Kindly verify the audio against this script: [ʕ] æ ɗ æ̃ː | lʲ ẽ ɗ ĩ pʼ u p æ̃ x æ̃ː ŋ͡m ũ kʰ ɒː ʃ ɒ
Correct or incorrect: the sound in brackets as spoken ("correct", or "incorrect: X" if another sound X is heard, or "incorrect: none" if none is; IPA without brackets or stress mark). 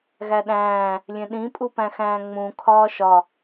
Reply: incorrect: ɣ